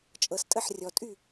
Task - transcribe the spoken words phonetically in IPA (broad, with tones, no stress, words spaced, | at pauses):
t͡ʃʼɤ˩stʼə˥˩ħ rʲɔ˩tʼy˥˩